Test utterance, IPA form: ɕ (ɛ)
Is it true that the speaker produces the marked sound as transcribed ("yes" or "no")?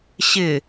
no